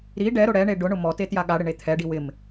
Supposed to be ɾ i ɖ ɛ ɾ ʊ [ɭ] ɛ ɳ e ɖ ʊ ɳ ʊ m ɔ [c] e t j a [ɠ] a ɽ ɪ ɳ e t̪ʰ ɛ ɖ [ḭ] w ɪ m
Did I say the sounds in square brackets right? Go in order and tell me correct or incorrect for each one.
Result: incorrect: ɽ, incorrect: t, correct, incorrect: i

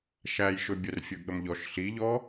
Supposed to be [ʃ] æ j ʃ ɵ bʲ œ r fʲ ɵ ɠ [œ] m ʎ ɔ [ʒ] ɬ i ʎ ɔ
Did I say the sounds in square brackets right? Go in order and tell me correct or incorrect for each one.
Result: correct, incorrect: ə, incorrect: ʃ

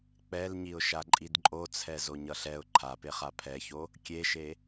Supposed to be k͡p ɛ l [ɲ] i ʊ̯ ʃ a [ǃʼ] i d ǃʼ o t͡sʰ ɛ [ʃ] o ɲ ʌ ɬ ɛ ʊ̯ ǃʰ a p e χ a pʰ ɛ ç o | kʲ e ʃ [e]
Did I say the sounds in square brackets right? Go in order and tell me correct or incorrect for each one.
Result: correct, correct, incorrect: z, correct

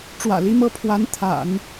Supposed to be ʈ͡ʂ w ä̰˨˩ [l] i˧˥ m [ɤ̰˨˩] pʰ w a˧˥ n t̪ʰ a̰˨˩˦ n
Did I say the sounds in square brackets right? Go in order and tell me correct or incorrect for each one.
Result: correct, incorrect: ɤ˥˩

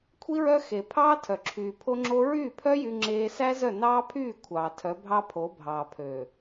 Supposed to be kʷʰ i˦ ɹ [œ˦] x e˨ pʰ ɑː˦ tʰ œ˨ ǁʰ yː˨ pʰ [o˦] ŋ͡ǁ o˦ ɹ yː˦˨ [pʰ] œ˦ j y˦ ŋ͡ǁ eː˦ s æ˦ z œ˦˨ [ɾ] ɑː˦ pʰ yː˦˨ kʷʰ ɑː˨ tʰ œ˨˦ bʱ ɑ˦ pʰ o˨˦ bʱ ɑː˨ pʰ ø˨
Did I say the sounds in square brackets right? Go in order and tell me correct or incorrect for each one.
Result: correct, correct, correct, incorrect: n

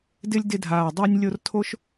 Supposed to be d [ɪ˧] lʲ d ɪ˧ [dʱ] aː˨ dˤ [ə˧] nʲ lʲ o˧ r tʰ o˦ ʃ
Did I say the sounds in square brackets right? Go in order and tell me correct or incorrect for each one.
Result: correct, correct, incorrect: a˧

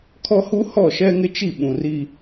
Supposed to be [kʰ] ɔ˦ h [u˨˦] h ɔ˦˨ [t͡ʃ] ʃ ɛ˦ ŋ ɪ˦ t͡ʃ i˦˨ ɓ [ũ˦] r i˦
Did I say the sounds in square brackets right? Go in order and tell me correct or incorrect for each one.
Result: correct, incorrect: u˦, incorrect: none, incorrect: ũ˨

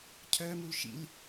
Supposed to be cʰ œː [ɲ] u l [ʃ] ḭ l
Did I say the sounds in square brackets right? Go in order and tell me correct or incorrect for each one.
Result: incorrect: m, correct

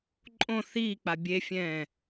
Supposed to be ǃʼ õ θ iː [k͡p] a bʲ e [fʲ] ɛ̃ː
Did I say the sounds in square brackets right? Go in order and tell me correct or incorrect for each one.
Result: correct, correct

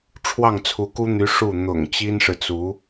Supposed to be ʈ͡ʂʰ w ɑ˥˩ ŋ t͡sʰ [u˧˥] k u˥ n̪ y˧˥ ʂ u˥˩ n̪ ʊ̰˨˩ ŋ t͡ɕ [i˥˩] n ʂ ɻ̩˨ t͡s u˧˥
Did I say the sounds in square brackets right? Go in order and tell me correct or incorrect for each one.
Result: correct, incorrect: i˥

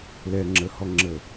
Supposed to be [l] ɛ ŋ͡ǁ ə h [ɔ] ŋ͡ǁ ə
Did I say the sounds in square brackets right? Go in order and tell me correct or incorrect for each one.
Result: correct, correct

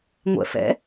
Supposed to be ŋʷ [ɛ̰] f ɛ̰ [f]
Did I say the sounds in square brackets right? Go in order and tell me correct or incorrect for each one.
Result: correct, incorrect: none

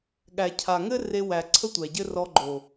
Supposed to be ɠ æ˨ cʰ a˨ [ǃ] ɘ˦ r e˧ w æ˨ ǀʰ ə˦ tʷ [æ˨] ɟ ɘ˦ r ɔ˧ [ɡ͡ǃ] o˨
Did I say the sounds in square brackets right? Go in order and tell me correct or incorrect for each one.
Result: incorrect: ŋ, correct, correct

